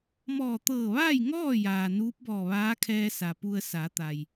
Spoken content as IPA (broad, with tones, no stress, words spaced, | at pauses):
mɔː˧˩t̪ɤː˧˩ʋaː˥˨j ŋɔː˥˨ jaː˩nuː˧˥p̚bɔː˧˩ ʋaː˧˥kʰɛː˧ sa˩pu˧ə̯ sa˩˧t̪a˩j